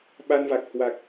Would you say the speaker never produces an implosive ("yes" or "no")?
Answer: no